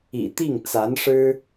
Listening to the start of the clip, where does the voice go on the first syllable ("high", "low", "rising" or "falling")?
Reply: low